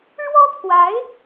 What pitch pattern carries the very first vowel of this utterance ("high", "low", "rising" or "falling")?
high